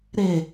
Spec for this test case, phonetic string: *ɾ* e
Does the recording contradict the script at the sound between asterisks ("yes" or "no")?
no